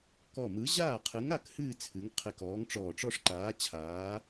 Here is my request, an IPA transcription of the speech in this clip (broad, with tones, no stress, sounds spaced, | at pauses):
k ɔ˧˩ m ɯ˨˥ ʑ aː˥˩ qʰ ɯ˨˥ ŋ a˥˧ k h ɨː˥˧ t͡sʰ ɨ˨˥ ŋ qʰ e˧˩ k ɔː˨˥ ŋ ʈ͡ʂ ɔː˧˩ ʈ͡ʂ ɔ˥˧ ʂ ǃ aː˨˥ t͡ɕʰ aː˨˥